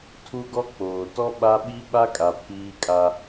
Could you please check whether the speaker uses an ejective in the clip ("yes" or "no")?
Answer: yes